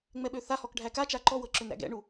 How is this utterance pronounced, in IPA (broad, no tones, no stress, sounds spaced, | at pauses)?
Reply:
ŋ͡m ɛ ɓ ø θ a h ɔ k ɖʱ æ k a t͡ʃ a ǃ ɔ w ɤ ǁ ø n ɾ æ̰ ɡ ɛ̰ ɳ u